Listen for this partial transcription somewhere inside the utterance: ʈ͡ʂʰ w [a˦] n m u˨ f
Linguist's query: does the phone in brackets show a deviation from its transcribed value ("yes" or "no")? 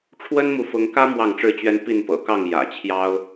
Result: yes